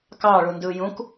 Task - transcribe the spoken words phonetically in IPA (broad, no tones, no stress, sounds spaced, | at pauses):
k ɑ ɭ u n d ɯ j ũ k